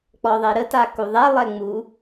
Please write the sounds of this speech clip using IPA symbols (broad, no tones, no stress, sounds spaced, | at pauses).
k͡p ɔ ðˤ e ɾ ə t a k u ðˤ ɛ lˠ ɛ ŋ͡m u